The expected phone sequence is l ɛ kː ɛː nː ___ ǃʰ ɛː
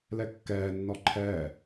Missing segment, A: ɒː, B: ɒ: B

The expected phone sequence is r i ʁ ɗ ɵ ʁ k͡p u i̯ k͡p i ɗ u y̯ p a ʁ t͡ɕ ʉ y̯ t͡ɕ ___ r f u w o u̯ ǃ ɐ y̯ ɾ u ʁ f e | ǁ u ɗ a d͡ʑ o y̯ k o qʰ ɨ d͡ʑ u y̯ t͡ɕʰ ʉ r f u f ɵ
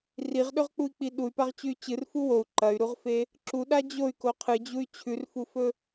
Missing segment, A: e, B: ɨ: B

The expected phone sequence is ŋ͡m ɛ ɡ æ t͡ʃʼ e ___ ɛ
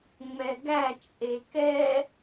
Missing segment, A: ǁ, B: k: B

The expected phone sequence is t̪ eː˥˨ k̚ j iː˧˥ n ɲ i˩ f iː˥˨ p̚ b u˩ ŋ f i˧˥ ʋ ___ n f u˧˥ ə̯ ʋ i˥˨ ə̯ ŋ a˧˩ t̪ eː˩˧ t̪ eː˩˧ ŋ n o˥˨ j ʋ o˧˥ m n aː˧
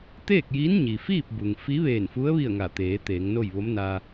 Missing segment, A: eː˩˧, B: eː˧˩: B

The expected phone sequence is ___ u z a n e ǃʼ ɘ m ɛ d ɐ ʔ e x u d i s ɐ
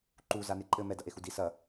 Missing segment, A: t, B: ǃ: B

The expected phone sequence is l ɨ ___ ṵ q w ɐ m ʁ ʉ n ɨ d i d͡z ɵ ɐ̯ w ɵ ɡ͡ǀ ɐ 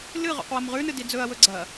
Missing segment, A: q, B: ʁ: B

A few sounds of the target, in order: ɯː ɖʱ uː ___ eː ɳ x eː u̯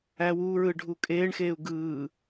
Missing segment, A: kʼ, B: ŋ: A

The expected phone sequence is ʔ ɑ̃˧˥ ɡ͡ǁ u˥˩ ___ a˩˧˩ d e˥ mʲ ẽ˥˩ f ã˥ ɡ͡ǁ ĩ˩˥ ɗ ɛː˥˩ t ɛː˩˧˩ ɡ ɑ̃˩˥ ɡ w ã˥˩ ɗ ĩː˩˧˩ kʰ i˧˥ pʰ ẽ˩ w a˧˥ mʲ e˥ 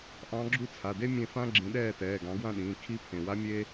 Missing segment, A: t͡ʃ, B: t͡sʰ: B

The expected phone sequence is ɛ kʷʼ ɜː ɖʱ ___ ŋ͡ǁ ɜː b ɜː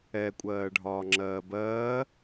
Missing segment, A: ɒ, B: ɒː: B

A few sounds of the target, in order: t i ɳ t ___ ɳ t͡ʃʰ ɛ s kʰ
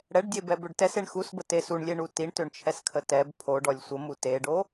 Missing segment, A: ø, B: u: A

